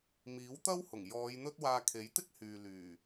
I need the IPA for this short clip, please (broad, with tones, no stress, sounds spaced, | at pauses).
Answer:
m iː˨˥ w t̪ ɐ˥ w h ʊ˨˩ ŋ j ɔː˨˧ j n̪ ɵ˥ t̚ w aː˧ kʰ e˨˥ j t̪ ɪ˥ k̚ h yː˨ l yː˨˩